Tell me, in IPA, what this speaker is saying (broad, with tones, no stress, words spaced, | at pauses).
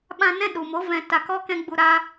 ɓã˧nɛ̃˦ɗu˨mo˨˦ vɛ̃˧ ta˧kɔ˦kɛ̃˦ɡ͡bu˧ ɾa˧